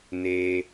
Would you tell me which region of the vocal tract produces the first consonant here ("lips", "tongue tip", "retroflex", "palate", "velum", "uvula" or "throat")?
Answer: tongue tip